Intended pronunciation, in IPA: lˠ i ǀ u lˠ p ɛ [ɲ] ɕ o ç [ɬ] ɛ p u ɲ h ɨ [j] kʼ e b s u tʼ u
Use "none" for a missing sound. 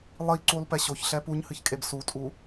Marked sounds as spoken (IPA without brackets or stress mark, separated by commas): none, ɬ, ç